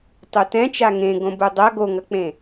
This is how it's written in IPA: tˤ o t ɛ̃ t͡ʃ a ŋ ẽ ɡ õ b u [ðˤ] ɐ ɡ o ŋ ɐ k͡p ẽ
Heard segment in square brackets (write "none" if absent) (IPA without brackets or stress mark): dˤ